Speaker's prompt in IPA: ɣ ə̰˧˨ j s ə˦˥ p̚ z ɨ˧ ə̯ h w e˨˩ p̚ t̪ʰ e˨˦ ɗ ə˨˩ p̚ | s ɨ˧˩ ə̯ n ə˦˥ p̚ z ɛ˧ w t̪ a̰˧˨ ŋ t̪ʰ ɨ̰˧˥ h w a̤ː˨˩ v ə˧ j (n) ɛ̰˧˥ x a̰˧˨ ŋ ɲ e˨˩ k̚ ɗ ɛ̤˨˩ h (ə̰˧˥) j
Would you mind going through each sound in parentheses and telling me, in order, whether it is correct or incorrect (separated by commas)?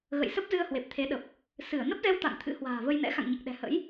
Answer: correct, correct